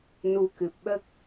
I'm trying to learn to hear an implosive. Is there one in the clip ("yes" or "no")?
yes